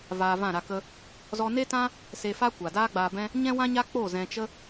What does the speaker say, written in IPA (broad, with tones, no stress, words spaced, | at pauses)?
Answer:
vaː˧vã˦˨ɾa˧kə˦ | zɔ˧ne˦tã˦ | se˧fa˦ kʷa˨ daː˦ɡ͡baː˧bɛ̃˦ | ɲɛ̃˦wã˦ɲa˦ k͡po˦˨zɛ̃˧t͡ʃə˦